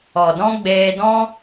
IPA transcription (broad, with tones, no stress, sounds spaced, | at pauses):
ɔ˨ d ɔ̃˦ ɡ͡b eː˧ d ɔ̃˦